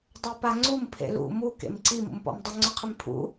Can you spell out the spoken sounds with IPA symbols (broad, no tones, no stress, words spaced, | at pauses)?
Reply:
dˤepaŋ͡ǀum pʰḛlṵ mu kḛmǀi mṵmpɔ̰mdˤɪ ŋ͡ǀʊqʰɪmpʰṵ